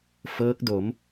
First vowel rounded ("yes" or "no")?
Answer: no